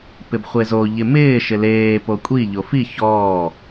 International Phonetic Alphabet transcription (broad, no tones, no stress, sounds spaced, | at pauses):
p ɪ b χʷ e z o ʎ ɪ m ɪː ʃ ɪ l eː p o kʷʼ i ʎ o f i ç ɔː